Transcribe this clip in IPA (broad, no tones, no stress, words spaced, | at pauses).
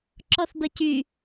ǁɔθbəcy